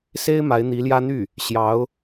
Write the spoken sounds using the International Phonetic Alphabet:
s e˥ ɪ̯ m a˧˥ ɪ̯ n̪ i˧˥ l j ä˥ n̪ y˥˩ | ɕ j ɑ˧˥ ʊ̯

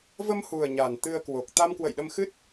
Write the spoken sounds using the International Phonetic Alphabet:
v ə˧ m h u˨˩ ə̯ ɲ a˨˩ n t̪ ɨ˧ ə̯ k w o˨˩ k̚ t̪ a˧ m k w ə̰˧˨ j ɗ ə˧ m x ɨ˦˥ t̚

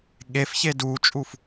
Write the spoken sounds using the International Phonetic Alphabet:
ɠ e f ç e d uː t͡ʃʼ u f

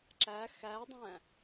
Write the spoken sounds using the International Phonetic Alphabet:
ǁ æ x æ dˤ æ̃

